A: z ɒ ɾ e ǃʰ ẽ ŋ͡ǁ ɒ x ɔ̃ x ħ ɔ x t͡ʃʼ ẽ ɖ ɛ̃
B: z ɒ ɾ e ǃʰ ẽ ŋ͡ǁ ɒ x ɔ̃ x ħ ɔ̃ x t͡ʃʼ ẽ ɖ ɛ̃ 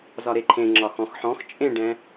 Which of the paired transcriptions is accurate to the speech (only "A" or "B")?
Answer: B